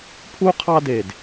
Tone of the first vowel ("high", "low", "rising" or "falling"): high